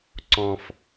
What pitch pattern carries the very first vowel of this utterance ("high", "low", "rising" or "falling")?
low